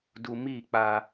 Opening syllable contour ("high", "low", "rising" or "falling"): low